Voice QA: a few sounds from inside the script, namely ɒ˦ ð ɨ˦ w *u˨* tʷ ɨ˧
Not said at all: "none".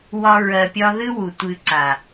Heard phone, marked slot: u˨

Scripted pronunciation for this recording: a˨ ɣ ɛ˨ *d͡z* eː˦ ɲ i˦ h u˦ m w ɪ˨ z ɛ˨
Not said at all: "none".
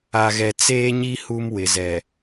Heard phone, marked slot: t͡s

